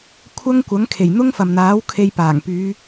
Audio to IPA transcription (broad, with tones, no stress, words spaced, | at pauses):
kʷʰɐ˧ŋ kʷɐ˨˥ŋkʰe˨˩j n̪ʊ˥ŋfɐ˨mn̪aː˨˥w kʰe˧jpaː˨˩ŋpyː˨˧